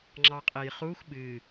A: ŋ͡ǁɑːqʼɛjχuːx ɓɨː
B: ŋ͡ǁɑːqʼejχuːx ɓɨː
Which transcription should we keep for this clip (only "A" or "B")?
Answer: B